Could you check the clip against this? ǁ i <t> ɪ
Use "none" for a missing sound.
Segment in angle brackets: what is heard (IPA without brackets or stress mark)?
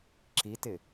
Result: t